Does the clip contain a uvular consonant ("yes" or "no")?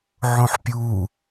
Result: no